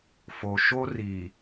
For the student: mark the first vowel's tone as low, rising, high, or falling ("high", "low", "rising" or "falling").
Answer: low